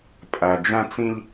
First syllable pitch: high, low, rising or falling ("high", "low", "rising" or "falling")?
low